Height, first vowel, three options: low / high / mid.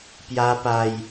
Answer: low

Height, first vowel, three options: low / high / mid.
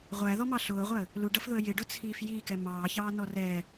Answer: low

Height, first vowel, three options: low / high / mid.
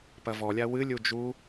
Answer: low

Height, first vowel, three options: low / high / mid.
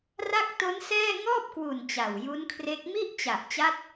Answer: low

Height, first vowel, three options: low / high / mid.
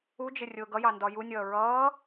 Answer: high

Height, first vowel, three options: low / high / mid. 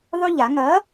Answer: high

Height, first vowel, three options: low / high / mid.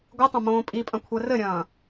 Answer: high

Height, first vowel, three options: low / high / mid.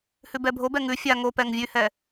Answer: high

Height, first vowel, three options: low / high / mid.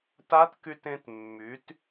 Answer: low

